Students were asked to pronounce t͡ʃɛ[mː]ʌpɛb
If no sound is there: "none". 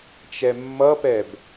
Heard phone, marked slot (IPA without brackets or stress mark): mː